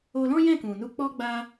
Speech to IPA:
o˧lɔ̃˦jɛ̃˦˨ kũ˨nu˧k͡pɔ˦ɡ͡ba˦

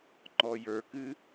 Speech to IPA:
ŋ͡ǃɔjə˞kɨ

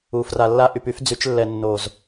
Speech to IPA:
u˨fra˨lːa˦ ʔy˨py˦fd͡zy˨˦t͡ʃlːɛ˨ nːo˨z

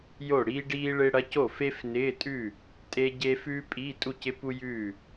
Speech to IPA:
jo˥˩ɽiː˥ɖiː˥ ɭɪː˥ɽɐ˧˥˧c o˥˩fe˥fnɪː˧˥˧tʼʉ˥˩ | tʼe˥ɟe˥ fʉː˥pʼiː˧˥˧tʼu˥˩c ɪ˥pu˥jʉː˥˩

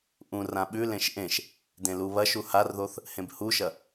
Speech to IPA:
ʔũrã ɓʉlẽʃ ʔẽʃ | dẽluβɐʃu harðoθ | hẽbhuʃɐ

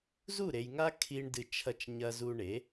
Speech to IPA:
zu˦˨ɾe˨jŋa˦ kʰi˧ɳ dɨ˧ t͡ʃʰɐ˧t͡ʃɲɐ˧ zu˧ɳe˨˦

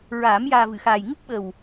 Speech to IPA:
ɹaː˨˩˦m jaː˨˩vɨ˨˩˨xaː˨˩j ŋɨ˦˥k̚ɓə˨˩w

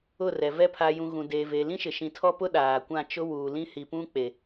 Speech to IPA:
ʊ˦˨rɛ˨vɛ˦ pʰa˨jũ˨ ɣũ˨deː˨ ve˨ lĩ˦ʃɪ˨ ʃĩ˨tʰɔ˦pʊ˦ ɗaː˨kʷã˦˨t͡ʃʊ˦ wuː˨lĩ˦ hi˨pũ˦ k͡pe˨

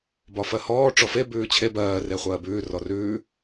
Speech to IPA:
bɒfɜhɔː ʈ͡ʂɔfe bʉːt͡ɕʰe bɜː reχʷɜːbʉː rɔrʉː

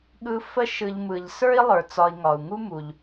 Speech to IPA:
ɠɯ˨ fə˦ʃɯ˨ʎmɯ˩ʎ sə˞˥i̯lˠə˞˩t͡sɒ˨i̯ ŋɒ˩u̯ŋu˥mu˩ʎ

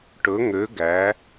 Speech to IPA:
ʈɵ˨˦ŋø˨˦ɡæ˨˦

